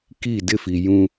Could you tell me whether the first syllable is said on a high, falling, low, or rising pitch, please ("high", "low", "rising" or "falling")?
falling